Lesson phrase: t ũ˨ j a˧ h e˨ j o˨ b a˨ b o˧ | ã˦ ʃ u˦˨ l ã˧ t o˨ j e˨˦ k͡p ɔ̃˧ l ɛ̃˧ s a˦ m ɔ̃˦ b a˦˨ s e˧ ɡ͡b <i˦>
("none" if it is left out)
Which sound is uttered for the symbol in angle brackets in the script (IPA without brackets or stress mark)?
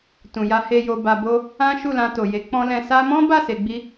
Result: i˦